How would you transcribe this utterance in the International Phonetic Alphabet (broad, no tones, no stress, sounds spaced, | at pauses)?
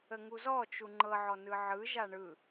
ə ŋ u z ɔ t͡ʃ u ŋ͡ǃ ɤ ʕ ɔ n ɯ ʕ ɯ ʒ a ɳ ɯ